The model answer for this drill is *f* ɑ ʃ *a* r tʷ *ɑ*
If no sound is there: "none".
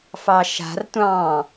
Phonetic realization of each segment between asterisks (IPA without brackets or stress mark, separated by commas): f, a̤, ɑ̃